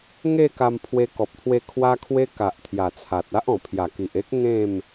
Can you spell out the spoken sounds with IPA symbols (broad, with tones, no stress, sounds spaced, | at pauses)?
ŋ e˥˧ k a˧ m pʰ w e˧ k ɔ˨ p̚ t̪ʰ w e˧ kʰ w a˦ kʰ w e˦ k a˨ ʔ t̪ʰ j a˨˩ t͡sʰ a˨ t̚ a˦ ʔ ɔ̃˨˩ pʰ j a˨˩ k i˨ ʔ e˦ k̚ ŋ ẽ˥˧ m